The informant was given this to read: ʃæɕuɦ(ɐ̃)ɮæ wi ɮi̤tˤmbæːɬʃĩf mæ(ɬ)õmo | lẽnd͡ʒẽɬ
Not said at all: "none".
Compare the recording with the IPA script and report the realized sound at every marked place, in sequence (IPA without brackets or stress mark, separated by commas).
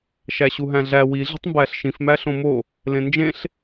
æ̃, ɬ